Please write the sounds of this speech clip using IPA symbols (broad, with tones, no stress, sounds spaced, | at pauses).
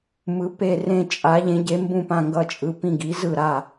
m ɯ˩˧ p e˧˩ r ẽ˧˩ t͡ʃʼ a˩˧ ʎ ẽ˩˧ ɟ e˩˧ m b ũ˧˩ p ã˧˩ ŋ ɡ ʌ˧˩ t͡ʃʼ ɯ˩˧ p ĩ˧˩ ɡ i˩˧ z ɯ˧˩ ɾ a˧˩